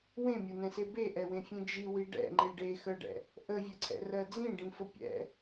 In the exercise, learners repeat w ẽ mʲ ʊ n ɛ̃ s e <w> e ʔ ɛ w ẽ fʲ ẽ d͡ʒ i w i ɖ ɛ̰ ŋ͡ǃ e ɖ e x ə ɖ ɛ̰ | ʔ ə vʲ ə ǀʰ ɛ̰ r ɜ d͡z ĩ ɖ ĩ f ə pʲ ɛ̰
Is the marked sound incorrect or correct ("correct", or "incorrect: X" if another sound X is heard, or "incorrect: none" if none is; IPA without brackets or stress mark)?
incorrect: b